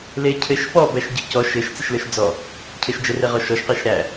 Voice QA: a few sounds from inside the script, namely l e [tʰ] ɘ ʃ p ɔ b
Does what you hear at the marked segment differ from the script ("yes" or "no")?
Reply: yes